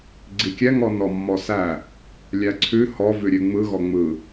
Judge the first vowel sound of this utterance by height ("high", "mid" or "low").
high